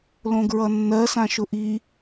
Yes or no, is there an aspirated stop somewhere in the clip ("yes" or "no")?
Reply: no